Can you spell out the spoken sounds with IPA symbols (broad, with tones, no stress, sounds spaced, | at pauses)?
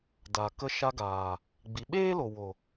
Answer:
d a˨ k ə˧ ʃ a˧ ɡ aː˨ | ɡ͡b i˨ ɓ eː˦ l o˨ w o˨